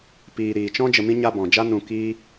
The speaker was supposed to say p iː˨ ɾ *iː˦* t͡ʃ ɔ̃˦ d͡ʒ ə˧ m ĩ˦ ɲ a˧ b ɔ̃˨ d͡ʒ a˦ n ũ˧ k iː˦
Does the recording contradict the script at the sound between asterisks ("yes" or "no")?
yes